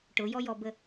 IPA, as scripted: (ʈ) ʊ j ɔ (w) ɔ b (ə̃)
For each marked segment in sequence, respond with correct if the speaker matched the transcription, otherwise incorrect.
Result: correct, incorrect, incorrect

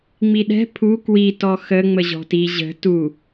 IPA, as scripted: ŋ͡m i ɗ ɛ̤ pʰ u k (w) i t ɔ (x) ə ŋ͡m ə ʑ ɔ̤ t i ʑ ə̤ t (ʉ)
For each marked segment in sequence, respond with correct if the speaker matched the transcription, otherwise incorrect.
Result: correct, correct, incorrect

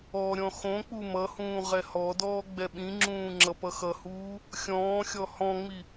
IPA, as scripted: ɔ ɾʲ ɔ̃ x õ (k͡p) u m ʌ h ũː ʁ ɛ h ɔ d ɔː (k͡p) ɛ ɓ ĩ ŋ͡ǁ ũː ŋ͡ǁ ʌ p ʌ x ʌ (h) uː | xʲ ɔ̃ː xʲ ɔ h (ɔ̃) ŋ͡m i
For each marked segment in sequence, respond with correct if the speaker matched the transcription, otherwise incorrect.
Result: correct, incorrect, correct, correct

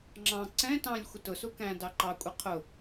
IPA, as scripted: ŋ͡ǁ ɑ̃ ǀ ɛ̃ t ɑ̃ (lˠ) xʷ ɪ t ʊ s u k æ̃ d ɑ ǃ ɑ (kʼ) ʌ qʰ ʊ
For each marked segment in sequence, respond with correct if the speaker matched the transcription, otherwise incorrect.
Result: incorrect, incorrect

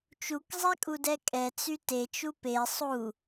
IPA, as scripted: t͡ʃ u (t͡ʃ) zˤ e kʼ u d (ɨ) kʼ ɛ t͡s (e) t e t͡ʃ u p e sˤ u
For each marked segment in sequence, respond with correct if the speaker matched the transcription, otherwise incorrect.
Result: incorrect, incorrect, incorrect

